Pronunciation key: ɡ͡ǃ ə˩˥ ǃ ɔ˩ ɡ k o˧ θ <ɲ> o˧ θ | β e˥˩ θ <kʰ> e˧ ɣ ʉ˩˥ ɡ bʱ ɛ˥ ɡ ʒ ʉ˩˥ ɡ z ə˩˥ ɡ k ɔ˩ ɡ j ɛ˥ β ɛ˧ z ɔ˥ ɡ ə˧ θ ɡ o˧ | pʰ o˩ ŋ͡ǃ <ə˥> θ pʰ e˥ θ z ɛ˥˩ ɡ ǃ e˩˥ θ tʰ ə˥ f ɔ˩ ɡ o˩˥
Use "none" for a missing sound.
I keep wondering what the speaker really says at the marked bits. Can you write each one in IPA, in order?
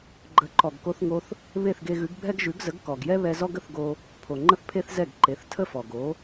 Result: ŋ, ɡ, ə˥

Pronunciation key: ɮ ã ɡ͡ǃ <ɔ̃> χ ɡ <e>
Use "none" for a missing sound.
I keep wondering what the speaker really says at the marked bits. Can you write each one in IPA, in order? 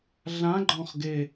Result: ɔ̃, e

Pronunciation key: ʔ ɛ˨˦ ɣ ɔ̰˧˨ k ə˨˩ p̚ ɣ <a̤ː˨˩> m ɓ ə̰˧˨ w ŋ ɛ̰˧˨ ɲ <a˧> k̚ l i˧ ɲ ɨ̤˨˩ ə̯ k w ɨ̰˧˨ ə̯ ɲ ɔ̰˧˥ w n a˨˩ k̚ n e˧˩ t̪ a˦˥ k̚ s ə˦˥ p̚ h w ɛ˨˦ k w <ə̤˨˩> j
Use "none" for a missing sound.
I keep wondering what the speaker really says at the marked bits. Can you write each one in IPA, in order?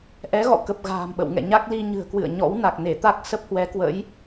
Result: a̤ː˨˩, a˦˥, ə̰˧˥

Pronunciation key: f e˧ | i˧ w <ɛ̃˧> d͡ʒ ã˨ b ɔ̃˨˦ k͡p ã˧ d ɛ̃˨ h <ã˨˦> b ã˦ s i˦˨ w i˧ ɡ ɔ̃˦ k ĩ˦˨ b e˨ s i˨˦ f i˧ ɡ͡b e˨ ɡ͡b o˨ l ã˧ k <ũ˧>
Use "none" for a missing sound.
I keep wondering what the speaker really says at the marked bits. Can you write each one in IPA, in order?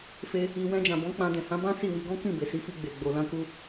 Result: ɛ̃˧, ã˨˦, u˧

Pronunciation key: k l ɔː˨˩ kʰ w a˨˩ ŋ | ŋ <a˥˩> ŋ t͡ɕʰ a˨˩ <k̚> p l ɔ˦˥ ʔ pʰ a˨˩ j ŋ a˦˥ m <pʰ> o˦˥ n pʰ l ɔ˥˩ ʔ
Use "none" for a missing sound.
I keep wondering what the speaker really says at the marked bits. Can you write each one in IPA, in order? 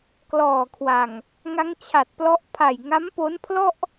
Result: a˦˥, t̚, p

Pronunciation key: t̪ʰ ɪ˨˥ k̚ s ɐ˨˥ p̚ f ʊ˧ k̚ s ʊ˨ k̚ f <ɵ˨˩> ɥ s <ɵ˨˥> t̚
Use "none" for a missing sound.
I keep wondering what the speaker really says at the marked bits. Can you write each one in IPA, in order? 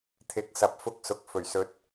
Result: ɵ˨˩, ɵ˨˥

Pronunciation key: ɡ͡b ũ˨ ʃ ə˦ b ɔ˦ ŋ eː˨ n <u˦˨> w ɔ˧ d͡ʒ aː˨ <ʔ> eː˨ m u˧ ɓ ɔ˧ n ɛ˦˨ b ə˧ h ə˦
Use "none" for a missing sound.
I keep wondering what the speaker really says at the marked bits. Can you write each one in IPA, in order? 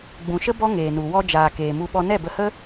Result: u˨, k

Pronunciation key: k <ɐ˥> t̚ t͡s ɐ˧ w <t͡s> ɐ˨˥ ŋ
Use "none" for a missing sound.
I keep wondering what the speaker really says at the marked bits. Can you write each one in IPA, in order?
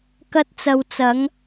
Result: ɐ˥, t͡s

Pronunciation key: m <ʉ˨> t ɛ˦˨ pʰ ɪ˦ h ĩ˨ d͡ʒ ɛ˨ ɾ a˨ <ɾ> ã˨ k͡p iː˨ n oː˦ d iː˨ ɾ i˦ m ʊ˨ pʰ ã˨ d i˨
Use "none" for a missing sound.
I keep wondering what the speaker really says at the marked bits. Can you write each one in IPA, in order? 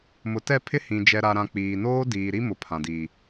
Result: ʊ˨, ɾ

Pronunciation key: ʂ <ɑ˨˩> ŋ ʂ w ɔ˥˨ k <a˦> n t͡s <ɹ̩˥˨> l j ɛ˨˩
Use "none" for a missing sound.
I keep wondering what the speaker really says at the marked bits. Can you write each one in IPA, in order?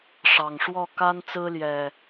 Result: ɑ˨˩, a˦, ɹ̩˦

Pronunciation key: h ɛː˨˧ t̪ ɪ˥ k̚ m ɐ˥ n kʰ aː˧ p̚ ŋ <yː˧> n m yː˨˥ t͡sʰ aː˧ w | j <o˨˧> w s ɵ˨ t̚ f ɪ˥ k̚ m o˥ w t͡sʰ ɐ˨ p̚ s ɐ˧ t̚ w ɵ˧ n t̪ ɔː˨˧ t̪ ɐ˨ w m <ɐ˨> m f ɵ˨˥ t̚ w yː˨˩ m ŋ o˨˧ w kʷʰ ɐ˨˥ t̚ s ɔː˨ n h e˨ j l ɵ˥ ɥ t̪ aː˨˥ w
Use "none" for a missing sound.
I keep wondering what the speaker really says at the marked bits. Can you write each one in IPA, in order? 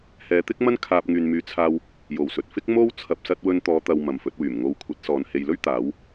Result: yː˨, o˨˩, ɐ˨

